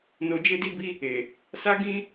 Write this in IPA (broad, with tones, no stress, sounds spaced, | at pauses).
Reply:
n o˧ d͡ʒ e˦ d i˦ b i˦ | e˨ | s a˦ ɡ ĩ˦